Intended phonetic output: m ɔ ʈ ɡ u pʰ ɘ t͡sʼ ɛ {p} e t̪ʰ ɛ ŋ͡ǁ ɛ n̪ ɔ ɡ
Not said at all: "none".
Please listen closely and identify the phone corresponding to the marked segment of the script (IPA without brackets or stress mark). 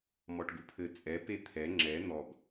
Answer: p